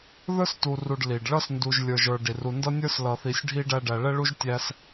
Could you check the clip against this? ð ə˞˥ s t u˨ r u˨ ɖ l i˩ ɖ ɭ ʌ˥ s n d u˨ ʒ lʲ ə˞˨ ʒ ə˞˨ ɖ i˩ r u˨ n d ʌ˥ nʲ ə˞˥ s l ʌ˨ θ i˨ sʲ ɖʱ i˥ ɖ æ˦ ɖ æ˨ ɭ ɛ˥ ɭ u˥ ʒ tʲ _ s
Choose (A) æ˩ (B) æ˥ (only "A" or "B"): B